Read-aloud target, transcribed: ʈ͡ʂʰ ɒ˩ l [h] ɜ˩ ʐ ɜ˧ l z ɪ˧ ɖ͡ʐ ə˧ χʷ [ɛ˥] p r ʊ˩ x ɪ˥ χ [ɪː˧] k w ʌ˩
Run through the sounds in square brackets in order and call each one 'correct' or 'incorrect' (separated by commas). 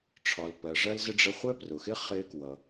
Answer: incorrect, correct, correct